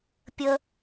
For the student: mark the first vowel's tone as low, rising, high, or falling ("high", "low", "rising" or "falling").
high